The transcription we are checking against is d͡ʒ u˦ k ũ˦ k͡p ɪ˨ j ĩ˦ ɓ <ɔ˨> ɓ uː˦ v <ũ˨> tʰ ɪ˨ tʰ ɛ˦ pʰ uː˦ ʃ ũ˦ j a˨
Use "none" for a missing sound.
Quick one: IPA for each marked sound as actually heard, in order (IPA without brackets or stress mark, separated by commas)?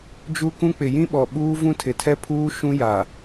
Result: ɔ˨, ũ˦